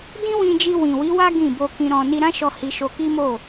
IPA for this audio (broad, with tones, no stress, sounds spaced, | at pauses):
d ĩ˦ w ĩ˧ d͡ʒ i˧ w ĩ˨ w i˨˦ w a˦ ɡ ĩ˦˨ b o˧ k ĩ˧ ɾ ɔ̃˨ n i˧ ɾ ã˦ ʃ ɔ˧ h i˧ ʃ o˧ k i˦ m o˦˨